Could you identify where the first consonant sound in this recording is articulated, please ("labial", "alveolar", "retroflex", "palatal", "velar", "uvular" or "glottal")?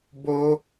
labial